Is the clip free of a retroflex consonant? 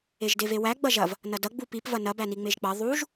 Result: yes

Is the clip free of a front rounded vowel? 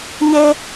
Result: yes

